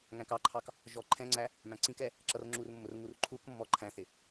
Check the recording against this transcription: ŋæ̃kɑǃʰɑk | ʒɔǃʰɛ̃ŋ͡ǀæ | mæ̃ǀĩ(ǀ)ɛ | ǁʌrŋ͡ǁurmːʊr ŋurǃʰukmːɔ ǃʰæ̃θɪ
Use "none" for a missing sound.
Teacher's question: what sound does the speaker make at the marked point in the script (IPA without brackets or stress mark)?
k